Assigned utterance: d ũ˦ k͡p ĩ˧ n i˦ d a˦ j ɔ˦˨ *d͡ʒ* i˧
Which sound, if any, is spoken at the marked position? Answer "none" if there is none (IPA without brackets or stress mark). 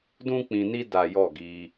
ɡ